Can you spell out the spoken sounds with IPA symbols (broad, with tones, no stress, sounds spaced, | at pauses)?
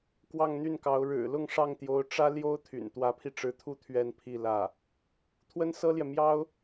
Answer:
k w ɑ˥˧ ŋ n̪ y˥˩ n k ɑ˧˥ ʊ̯ ɻ ɻ̩˨˩ l ʊ˥˧ ŋ ʂ ɑ˥˩ ŋ t̪ j o˧˥ ʊ̯ ʈ͡ʂ ä˥ l j o˥ ʊ̯ t̪ʰ y̰˨˩ n t̪ w ä˧˥ pʰ i˧ ʈ͡ʂ ɻ̩˧˥ t̪ʰ u˥˧ t̪ʰ ɥ ɛ˥˧ n pʰ i˥˧ l ä˥˩ | t̪ʰ w ə˥ n s ɤ˥ l j ɛ˨ m j ɑ˥ ʊ̯